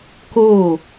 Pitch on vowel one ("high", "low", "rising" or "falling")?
falling